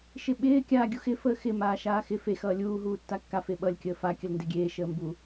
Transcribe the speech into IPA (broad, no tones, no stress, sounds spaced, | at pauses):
ʃ ɪ ɓ ɪː kʲ aː ɡʲ u x ɪ f əː x ɪ m aː ʃ aː x ɪ f e x ʌː lʲ uː ɦ uː tː a kː a f e ɓ ʌ lʲ kʲ əː f a kʲ ə l n d e ɡʲ eː ʃ əː m b u